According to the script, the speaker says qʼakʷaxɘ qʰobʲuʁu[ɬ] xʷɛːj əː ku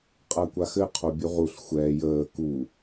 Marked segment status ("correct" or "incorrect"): correct